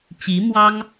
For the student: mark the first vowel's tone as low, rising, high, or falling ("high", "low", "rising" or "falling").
rising